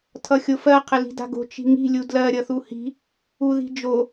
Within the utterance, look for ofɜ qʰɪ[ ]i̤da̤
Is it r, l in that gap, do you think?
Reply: l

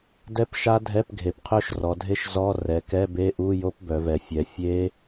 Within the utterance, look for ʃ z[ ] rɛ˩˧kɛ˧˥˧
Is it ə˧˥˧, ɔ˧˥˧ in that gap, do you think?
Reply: ɔ˧˥˧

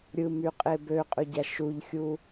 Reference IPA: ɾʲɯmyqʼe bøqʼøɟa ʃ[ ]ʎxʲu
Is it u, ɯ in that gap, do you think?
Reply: u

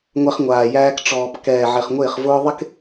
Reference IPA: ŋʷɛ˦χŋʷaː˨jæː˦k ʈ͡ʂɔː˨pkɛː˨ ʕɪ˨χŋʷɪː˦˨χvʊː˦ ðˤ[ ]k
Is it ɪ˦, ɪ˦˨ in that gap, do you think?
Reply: ɪ˦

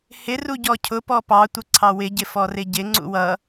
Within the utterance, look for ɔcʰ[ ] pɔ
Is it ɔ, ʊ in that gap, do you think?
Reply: ʊ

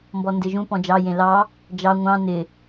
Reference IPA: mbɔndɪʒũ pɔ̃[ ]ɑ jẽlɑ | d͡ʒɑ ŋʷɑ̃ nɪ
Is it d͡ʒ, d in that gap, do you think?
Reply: d͡ʒ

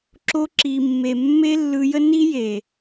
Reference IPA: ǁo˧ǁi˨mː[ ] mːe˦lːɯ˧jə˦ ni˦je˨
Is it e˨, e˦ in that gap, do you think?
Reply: e˨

